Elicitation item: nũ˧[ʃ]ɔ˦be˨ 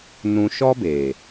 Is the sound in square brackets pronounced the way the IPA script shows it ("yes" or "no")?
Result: yes